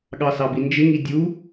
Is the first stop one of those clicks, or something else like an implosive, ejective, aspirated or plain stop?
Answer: implosive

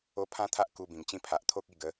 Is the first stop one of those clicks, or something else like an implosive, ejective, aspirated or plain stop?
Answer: aspirated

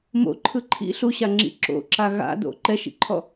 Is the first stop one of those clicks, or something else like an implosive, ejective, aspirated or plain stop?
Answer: click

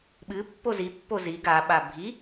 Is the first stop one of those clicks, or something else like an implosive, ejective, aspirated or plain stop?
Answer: implosive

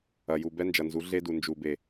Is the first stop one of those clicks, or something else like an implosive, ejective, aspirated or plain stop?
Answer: plain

